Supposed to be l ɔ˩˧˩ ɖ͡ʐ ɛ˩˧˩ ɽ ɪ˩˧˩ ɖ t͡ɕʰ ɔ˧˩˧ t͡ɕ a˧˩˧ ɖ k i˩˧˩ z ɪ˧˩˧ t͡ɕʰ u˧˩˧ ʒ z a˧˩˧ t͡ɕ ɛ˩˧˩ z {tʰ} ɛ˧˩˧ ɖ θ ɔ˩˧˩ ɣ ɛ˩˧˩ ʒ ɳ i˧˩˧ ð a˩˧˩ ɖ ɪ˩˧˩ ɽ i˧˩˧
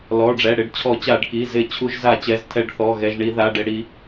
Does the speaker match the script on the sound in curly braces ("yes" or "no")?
yes